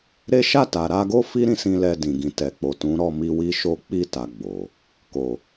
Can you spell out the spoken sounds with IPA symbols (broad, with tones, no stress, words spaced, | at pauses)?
ɾe˦ ʃa˦˨ta˨ɾa˧ɡo˦ fi˦ɾĩ˧sĩ˧ lɛ˧dĩ˨ɡĩ˨tɛ˨ k͡po˨ tũ˨˦ ɾɔ˦˨mi˧ wi˦ʃo˦ k͡pi˦˨ta˨ ɡ͡bo˨ | ko˨